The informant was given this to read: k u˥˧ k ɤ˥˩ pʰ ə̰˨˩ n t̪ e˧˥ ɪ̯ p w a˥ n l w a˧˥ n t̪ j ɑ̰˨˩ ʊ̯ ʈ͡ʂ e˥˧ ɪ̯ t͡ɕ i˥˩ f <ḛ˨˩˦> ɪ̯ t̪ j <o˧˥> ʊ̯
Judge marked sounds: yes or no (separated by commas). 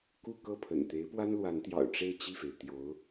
no, yes